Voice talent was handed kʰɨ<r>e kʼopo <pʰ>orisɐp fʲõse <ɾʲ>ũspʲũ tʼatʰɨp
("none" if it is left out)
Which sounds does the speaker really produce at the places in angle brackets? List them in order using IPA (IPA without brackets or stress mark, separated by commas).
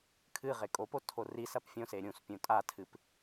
ʁ, tʰ, ɾʲ